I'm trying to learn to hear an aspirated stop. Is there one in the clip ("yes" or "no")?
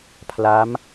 yes